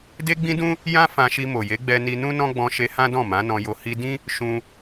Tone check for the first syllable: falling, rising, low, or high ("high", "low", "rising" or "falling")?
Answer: high